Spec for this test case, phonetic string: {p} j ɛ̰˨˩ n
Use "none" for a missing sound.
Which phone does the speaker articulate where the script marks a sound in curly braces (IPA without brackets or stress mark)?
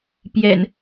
p